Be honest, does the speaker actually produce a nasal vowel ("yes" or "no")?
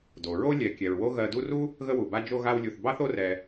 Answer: no